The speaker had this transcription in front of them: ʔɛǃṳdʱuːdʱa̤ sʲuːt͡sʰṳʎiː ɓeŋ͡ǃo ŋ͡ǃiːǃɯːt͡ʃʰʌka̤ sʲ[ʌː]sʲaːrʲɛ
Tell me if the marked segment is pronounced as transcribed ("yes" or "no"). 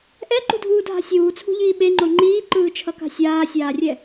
no